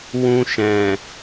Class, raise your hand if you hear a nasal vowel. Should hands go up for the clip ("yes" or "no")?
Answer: yes